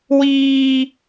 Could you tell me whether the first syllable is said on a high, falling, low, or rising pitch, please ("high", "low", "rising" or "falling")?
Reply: high